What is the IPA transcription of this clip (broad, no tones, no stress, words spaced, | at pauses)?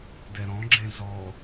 dɛɾɔ̃ɡ͡ǁẽ zɔ